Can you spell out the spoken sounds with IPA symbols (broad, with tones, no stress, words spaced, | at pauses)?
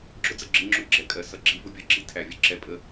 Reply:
ɡ͡ǁʊ˦d͡zə˨ ɡ͡ǁɪ˧ŋ͡ǁʊ˧ ɡ͡ǁɛ˨kʼɜ˨ sʌ˨ɡ͡ǁi˧ vʊ˧bʲɒ˧ɡ͡ǁi˦ tʰæ˨vʲʌ˧ ǁɛ˦ pʼə˧